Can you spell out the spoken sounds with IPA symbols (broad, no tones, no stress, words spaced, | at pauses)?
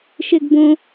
ʃɛɡbõ